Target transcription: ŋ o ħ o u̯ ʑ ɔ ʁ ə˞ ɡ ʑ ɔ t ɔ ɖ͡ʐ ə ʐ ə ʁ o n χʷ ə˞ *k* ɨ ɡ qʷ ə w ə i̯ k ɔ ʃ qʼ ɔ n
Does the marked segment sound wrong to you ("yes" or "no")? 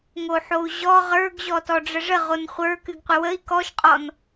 no